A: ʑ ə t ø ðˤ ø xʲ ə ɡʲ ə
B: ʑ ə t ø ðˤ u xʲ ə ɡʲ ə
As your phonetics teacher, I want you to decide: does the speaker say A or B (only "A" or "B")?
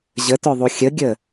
B